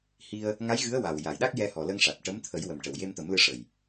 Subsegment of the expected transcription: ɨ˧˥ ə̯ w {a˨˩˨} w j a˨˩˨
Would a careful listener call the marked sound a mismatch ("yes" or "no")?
yes